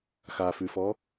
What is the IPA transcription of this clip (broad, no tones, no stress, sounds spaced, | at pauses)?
x a f ʉ f ɔ